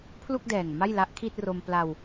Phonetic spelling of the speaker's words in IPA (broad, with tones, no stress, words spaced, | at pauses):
pʰlu˥˩k̚dɛː˨˩ŋ ma˥˩jla˦˥ʔkʰi˥˩t̚ro˧m pla˧w